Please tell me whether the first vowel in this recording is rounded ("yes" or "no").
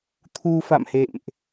yes